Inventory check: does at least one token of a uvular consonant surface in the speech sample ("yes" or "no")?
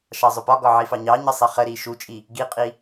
yes